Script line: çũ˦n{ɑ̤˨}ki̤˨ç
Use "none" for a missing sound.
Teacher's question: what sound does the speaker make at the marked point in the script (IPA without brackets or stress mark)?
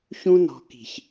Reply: ɔ̤˨